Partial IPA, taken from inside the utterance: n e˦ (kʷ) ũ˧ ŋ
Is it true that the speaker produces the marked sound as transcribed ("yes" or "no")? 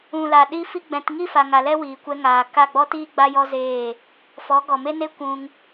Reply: yes